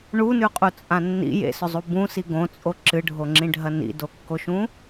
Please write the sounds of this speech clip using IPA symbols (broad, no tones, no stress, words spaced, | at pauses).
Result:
ɳunʉqʼut͡sʼã nːḭ jḛsɵzˤu bũsi ɡõt͡sʼo ǁɨɖʱoŋ͡ǁĩɖʱɐ nḭdokːoʃũ